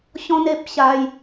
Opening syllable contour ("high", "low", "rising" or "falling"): high